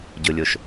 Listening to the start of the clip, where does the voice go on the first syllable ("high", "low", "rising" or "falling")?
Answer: low